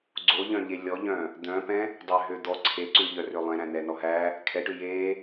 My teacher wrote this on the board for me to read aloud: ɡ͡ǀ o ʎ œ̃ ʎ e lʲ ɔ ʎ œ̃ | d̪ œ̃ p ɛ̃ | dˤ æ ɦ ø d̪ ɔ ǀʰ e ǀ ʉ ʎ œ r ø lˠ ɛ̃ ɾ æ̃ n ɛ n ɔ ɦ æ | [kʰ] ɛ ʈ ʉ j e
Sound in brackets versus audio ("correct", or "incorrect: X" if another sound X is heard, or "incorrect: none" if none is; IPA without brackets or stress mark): correct